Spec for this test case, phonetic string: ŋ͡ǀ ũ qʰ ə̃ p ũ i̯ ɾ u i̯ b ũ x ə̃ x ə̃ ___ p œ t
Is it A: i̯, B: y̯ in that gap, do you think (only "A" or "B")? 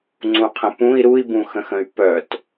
B